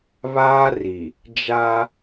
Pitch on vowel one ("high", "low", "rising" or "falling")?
high